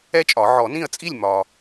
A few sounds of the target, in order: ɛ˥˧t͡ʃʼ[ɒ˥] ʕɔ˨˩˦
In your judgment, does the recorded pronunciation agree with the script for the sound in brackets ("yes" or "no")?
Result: no